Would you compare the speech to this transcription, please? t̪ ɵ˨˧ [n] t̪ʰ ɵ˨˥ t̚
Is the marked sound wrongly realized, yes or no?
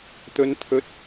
no